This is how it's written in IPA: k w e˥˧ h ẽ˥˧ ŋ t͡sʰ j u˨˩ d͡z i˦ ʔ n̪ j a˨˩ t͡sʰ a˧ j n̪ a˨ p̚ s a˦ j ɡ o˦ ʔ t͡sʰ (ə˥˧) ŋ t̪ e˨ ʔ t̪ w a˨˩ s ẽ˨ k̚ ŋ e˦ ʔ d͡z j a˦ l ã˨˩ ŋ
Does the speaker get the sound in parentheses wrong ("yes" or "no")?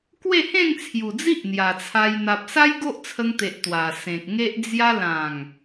yes